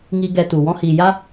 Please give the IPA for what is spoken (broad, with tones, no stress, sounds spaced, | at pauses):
ŋ i˧ ɡ ɛ˧ t u˨ w ɔ̃˧ h iː˨ j a˦